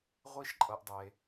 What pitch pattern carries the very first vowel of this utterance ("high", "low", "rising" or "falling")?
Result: high